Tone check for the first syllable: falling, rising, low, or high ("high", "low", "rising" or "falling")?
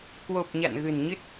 low